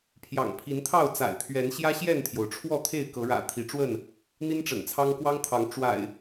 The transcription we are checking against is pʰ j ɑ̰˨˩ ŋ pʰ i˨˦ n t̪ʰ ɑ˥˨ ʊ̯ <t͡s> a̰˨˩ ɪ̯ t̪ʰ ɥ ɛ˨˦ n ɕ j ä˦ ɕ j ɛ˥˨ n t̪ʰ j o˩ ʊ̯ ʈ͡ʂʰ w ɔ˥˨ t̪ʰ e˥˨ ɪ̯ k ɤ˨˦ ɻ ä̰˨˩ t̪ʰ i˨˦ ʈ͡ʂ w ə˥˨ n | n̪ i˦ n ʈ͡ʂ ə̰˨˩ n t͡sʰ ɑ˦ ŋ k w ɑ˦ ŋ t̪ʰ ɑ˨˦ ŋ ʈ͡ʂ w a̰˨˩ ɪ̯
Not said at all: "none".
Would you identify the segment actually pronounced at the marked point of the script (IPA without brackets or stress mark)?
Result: t͡s